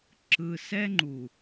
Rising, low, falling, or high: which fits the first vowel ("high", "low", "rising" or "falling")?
low